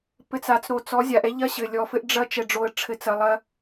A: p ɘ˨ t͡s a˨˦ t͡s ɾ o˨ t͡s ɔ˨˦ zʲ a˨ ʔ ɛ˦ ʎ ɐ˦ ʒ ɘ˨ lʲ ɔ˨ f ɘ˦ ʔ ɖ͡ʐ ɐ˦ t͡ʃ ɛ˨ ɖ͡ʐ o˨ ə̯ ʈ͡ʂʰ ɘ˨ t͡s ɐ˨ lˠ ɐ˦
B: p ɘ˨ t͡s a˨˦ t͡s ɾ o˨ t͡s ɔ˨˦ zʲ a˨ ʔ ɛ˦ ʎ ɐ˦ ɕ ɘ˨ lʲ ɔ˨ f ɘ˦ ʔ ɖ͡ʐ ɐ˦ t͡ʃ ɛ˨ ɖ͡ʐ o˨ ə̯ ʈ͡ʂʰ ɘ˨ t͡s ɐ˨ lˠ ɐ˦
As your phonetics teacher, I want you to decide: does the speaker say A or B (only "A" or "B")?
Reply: B